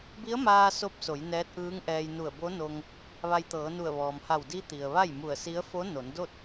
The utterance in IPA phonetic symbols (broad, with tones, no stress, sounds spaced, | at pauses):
b i˧˥ ə̯ m aː˧ s o˧˥ p̚ s o˩˧ j n ɛː˧˥ t̚ ʔ ɯː˧˥ ŋ ʔ ɛː˧ j n u˧˩ ə̯ b o˧˥ n o˧ ŋ | ʋ a˧ j t̪ ɤː˩˧ n u˧˩ ə̯ ʋ ɔː˩ m h a˧˩ w d i˧˥ t̪ i˩ ə̯ ʋ a˥˨ j m u˧˩ ə̯ s i˧˥ ə̯ f o˧˥ n o˩˧ n d o˥˨ t̚